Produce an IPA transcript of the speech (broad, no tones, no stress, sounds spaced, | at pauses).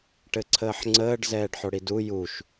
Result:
ʈ ɘ ǀʰ əː ħ ŋ͡ǀ əː ɖ z ɛː ɖ ħ o ɽ i d u j u ʃ